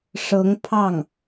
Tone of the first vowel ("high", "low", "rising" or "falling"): rising